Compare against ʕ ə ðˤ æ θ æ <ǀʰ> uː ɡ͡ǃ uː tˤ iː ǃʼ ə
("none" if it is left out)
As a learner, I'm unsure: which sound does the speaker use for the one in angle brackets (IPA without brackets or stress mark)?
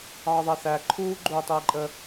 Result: ǃʰ